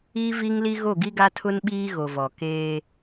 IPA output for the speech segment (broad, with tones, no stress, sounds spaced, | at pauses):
i˦ v i˦ ŋ l i˦ ɣ o˦˨ ɡ i˦ ɡ a˦ tʰ ʊ˦ n ɓ iː˦ ɣ o˨ v ɔ˨ k eː˦